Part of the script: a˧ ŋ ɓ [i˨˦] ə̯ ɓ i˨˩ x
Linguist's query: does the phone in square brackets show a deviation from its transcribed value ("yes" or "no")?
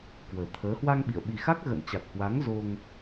yes